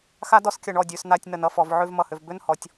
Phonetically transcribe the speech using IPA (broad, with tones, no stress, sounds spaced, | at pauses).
x a˥ d ɔ˥ s kʲ ʌ˩˧ ɳ ɔ˧˩ dʲ ʉ˩˧ s n̪ a˥˧ tʲ n ə˩˧ n ʌ˧ f ɔ˩˧ v ʕ ʉ˥˧ v m ʌ˧˩ h ʏ˧ v b ʏ˥˧ n h ɔ˩˧ tʲ